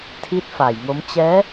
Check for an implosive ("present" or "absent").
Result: absent